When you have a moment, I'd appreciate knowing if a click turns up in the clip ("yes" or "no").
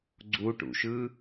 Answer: yes